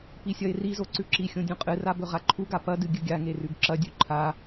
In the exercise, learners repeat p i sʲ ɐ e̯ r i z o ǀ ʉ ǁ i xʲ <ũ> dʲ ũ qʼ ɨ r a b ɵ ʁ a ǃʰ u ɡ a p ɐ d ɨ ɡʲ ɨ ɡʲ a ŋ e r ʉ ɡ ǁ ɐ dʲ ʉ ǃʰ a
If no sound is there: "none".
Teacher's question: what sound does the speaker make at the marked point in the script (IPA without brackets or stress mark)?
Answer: õ